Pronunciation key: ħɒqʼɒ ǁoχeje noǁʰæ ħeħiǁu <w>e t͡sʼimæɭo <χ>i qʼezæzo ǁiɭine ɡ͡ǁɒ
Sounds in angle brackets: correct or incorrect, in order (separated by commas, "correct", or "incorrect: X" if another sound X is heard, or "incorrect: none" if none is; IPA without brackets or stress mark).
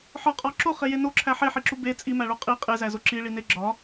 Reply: incorrect: b, incorrect: qʼ